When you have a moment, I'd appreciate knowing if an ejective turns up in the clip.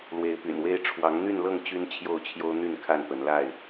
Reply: no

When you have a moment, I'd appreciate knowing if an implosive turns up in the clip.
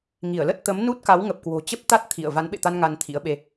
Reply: yes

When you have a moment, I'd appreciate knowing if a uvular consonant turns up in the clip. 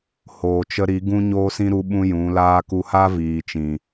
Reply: no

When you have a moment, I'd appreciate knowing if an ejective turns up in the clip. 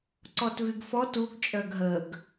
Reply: yes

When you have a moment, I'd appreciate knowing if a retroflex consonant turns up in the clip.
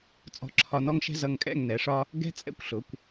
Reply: yes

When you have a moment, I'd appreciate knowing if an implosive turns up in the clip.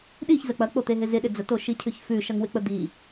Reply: yes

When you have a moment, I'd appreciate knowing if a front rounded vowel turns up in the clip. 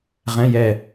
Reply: no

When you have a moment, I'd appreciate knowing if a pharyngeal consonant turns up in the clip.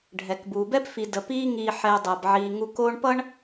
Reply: yes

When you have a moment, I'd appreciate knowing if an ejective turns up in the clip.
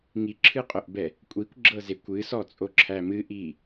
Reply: yes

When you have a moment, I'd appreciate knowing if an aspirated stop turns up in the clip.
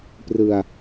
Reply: no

